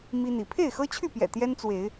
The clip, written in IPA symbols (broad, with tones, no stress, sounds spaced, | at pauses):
m i˦ n̪ i˨˦ pʰ e˥˨ ɪ̯ x ɤ˦ t͡ɕʰ y˥˨ p j ɛ̰˨˩ t̪ j ɛ˦ n t͡s w e˨˦ ɪ̯